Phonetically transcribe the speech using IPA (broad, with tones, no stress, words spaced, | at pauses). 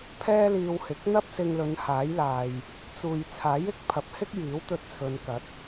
pʰɛː˥liː˧whɪ˨˥k̚ n̪ɐ˥p̚sɪ˧ŋlɵ˨˧n haː˨˥jlaː˨j | t͡suː˨j t͡sʰaː˨˥jɪ˨˥k̚pʰɐ˨˥p̚ hɪ˥k̚ jiː˨˥wt̪ɵ˧t̚ t͡sʰɵ˨˧nkɐ˨˥t̚